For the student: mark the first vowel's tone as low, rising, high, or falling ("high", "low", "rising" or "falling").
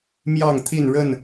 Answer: falling